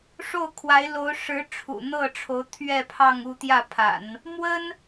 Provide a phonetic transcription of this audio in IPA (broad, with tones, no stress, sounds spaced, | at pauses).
ʂ o˥˩ ʊ̯ kʰ w a˧˥ ɪ̯ l o˧˥ ʊ̯ ʂ ɻ̩˧˥ ʈ͡ʂʰ ṵ˨˩ n̪ ɤ˥˩ ʈ͡ʂʰ o˧˥ ʊ̯ t̪ʰ ɥ ɛ˥˧ pʰ ɑ˥˧ ŋ u˥˧ t̪ j ä˥˩ pʰ a̰˨˩˦ n | m w ə˥ n